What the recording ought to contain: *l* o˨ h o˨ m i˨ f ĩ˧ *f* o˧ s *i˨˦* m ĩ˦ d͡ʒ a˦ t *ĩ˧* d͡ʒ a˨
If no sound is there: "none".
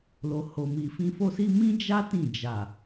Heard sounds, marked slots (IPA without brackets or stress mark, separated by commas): l, f, i˧, ĩ˦˨